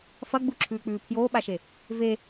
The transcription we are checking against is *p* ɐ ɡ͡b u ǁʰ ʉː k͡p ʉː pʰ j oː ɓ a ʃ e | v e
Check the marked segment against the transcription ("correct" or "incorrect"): incorrect